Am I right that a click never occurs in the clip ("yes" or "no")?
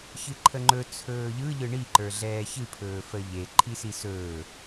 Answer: no